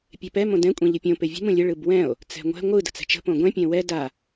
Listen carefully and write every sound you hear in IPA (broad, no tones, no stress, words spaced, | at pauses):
pʲɛpɛ mõdɛ̃ kʷʼẽʎɯpʲõ pevʲə̤m ũlʲə ɭɯbwɛ̃o̯ | t͡sɛ̤ŋʷɛ̤ ŋʷɯ də̤t͡sɛ̤t͡ʃə̤ põɡʷɛ̃ pʲɛ̃wɛ da